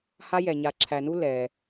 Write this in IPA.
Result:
h a˦ j ɛ˩ ɲ a˨ ǁʰ æ˨ n u˥ l ɛ˩

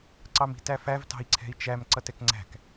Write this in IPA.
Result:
ǀ ɑ m i̤ t æ f æ v t ɑ̤ i̯ ǀʰ ɛ̤ i̯ t͡ʃ æ m ǀ ʌ t ɛ k ŋ͡ǀ æ̤ k

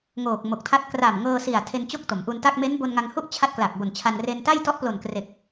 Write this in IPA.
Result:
ŋ oː˨˩ k̚ m o˨˩ k̚ tʰ a˦˥ t̚ k r a˨˩ m ŋ ɤː˧ s i˨˩ a̯ tʰ e˧ n t͡ɕ o˥˩ k̚ t o˩˦ m ʔ u˧ n t a˥˩ k̚ m e˦˥ n b o˧ n ŋ a˧ ŋ h u˥˩ ʔ t͡ɕʰ a˦˥ t̚ k l a˨˩ k̚ b o˨˩ n t͡ɕʰ a˧ n r e˧ n t a˥˩ j t ɔ˦˥ ʔ p l o˨˩ n k r e˨˩ k̚

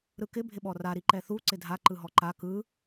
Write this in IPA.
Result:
ɾ ɯ k ɪ bʱ ɪ ɓ ɔ r a ɾ i ǃ ɛ θ u ǀ ɪ dʱ a ǃ ɯ ɦ ɔ ǃ a k ɯ

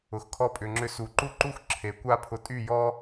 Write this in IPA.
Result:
ʊ˨ x kʰ ɔ˧ pʼ ʏ˨ ŋ͡ǁ ʏ˧ s u˨ ǃ u˦ ǃ u˦ x ǁʰ e˨ kʷ a˦ pʰ ʊ˧ tʼ y˦˨ j ɔ˦

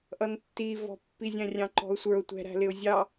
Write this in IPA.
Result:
ʔ ʌ n tː i v ɔ̤ pː i zʲ æ̃ rʲ ɑ̃ ǃ ɔ̤ ʊ̯ sʷ ə˞ ʊ̯ tʷ ɛ̤ ɾ æ̤ l ɪ ʊ̯ zʲ ɑ

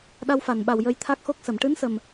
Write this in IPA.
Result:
ɗ a˧ w f a˨˩˨ n ɓ a˨˩ w j ə˧ j t̪ʰ a˦˥ k̚ x o˦˥ k̚ s ə˨˩˨ m ʈ ɨ˧˥ n s ə˨˩ m

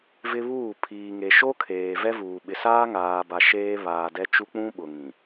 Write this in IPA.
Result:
v ɪ˦ β uː˦˨ pʰ iː˨ ŋ e˨ ʃ o˦ kʰ eː˨ v ɛ˦ v uː˨ ɓ ɪ˨ s aː˦ ŋ aː˨ b a˨ ʃ eː˦ β aː˨ d ɛ˦ t͡ʃ u˦ k͡p ũ˦ ɓ ʊ˨ ŋ ĩ˨

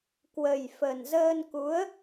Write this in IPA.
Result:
k w ə˨˩ j f ə˨˩ n z əː˧ n k u˨˦ ə̯

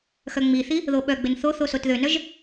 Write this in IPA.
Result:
x œ ŋ͡m i θ i | ð o ɓ œ ɡ͡b ɪ n θ o θ o s o t ð ø n œ ʒ

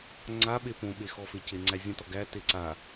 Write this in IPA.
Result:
ŋ͡ǀ a ɓ e p õ ɓ e x ɔ f e c e ŋ͡ǀ æ zʲ ə̃ t ɔ ɡ æ t e ǀ a

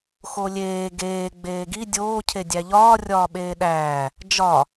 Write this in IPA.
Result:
x o lʲ eː ɡ eː ɡ͡b eː ɡ i dʲ oː cʰ e dʲ æ ʎ ɒː rʲ ɒː ɓ eː ɗ æː | d͡ʒ ɒ

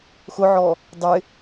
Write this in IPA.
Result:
x ʊ ʕ ɔ | dˤ ɪ

